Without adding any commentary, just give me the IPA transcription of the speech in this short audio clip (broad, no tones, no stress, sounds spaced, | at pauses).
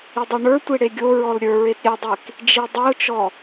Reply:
i dˤ o ɳ ə˞ tʷ e ɽ e ɡʲ o ɹ ɔ l ɾʲ ə˞ ɹ e t ɾʲ ɛ dˤ e k | d͡ʒ i dˤ i ʊ̯ t͡ʃ ɔ